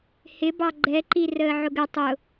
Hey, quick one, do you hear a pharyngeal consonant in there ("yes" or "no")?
yes